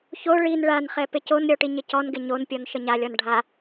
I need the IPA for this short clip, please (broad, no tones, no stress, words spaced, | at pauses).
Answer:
ço ɭin ɭanχɛ pɪconɾʲɔ ʈiɲɪcɔnɡɪ ɲonpʲɔn ʃəɲalʲɔn ɖʱa